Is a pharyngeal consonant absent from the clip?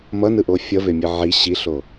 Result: no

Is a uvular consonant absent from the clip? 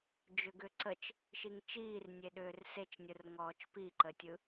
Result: yes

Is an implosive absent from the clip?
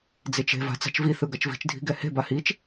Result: yes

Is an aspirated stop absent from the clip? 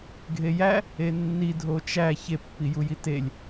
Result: yes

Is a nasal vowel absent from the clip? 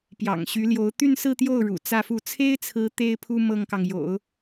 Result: yes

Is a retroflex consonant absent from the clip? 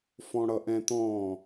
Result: no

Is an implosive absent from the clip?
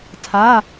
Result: yes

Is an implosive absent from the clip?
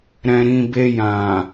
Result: yes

